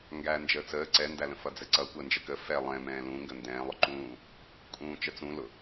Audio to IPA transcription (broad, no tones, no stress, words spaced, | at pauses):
ŋɡæ nd͡ʒəːt͡səː ǀɛndælə̃ fʌd͡zɛǀʌ kʷəːnd͡ʒəkə fɛ lˠɛ̃mɛ̃ː lũ ŋɡəndɛ̃ː lˠʊǃũː | kʼũːt͡ʃət͡sũ lʊ